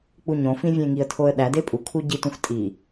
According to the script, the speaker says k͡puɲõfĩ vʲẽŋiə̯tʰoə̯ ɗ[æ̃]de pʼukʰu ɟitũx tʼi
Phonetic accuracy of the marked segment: incorrect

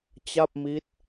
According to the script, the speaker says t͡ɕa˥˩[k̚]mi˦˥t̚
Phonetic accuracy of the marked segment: incorrect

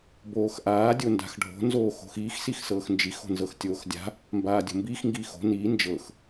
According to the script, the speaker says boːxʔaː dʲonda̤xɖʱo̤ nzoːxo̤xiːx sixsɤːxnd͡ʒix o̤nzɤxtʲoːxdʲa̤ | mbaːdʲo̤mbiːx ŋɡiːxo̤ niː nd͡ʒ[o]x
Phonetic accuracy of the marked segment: incorrect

